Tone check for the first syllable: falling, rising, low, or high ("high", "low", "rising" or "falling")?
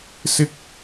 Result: high